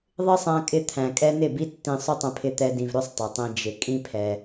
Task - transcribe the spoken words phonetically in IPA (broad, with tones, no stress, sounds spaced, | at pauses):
ðˤ ɪ˦ sˤ æ̃˧ kʼ ɪ˧ t̪ʰ æ̃˨ kʼ ɛ˦ n ɪ˦˨ b i˦ tː ĩ˧ sˤ ʏ˦ tˤ ə̃˧ pʰ ɪ˧ t̪ ɛ˧ d ĩ˨ v ɾ ʏ˦˨ sˤ tˤ ɛ˨ tˤ ĩ˧ d͡ʒ ɪ˨ kʼ ĩ˦ pʰ ɛ˧